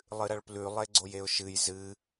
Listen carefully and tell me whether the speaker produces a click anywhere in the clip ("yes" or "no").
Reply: yes